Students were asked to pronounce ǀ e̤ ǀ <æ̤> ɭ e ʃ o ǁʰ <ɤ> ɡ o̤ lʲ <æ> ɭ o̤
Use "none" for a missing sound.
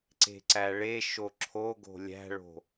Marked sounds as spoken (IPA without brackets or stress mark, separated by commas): æ, o, æ̤